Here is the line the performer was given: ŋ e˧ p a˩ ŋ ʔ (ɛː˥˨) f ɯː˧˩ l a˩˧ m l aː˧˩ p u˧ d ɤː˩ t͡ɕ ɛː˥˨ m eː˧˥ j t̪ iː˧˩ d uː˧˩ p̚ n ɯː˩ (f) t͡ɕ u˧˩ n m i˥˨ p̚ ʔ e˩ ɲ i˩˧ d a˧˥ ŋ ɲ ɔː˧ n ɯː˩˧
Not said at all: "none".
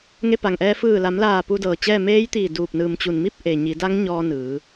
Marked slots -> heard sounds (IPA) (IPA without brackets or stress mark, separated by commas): ɛː˧, m